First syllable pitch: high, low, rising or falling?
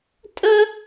high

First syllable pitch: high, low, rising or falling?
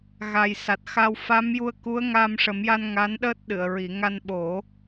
low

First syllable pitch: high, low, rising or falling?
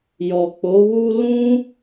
low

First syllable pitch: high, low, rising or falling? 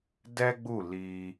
high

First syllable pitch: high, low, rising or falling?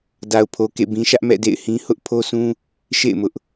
low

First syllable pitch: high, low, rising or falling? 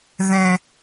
high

